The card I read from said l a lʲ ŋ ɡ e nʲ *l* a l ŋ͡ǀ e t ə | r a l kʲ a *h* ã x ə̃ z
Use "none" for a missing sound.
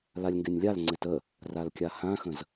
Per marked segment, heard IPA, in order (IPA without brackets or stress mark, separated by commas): lʲ, h